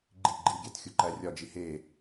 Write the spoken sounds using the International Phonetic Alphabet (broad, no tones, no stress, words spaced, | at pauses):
ɡ͡ǃi ɡ͡ǃiɡʲæt xʲuǃærʲɒd͡ʒi he